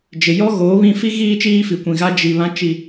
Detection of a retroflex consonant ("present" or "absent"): absent